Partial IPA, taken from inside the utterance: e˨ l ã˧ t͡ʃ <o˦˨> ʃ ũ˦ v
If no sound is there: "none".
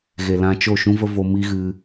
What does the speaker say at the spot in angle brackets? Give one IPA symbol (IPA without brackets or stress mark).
o˦˨